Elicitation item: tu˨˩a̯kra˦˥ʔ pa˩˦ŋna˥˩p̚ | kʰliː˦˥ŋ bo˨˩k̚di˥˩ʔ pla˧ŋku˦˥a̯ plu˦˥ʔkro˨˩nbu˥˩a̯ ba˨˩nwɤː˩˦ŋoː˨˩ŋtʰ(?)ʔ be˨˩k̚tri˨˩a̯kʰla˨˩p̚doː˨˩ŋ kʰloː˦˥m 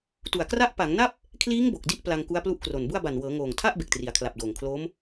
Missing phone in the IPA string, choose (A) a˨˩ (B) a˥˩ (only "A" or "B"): B